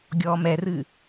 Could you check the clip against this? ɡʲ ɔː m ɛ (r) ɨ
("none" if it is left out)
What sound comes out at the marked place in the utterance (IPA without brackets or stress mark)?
r